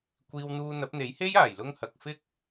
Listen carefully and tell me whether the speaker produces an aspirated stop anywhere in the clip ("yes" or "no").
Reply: no